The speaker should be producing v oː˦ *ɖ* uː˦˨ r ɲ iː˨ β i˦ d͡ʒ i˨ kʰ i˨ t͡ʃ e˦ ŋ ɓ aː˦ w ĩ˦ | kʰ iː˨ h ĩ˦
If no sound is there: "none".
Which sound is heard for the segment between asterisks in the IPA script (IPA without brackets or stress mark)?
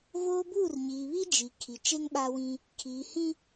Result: b